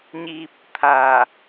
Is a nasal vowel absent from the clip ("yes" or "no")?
yes